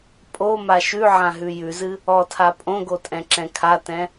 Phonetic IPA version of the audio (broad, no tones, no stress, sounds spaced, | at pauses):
pʼ o m a ʃ ʉ ʕ ã ɦ ʉ j ʉ z ɨ | ɔ tʰ a pʼ õ ɡ o tʼ ɛ̃ ǁ ɛ̃ kʰ a t ɛ̃